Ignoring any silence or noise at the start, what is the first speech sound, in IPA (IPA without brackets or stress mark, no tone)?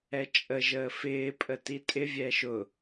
ɛ